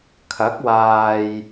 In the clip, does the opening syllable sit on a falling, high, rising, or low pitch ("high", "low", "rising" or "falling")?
rising